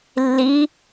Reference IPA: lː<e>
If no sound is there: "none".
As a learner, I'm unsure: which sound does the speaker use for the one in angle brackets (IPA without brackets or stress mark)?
i